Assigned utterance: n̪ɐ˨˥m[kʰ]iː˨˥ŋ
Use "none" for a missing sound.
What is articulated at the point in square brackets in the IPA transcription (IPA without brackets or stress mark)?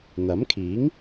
kʰ